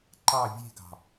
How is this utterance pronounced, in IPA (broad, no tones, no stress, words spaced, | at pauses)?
ǃɑ vʲe̤ɡɑ̤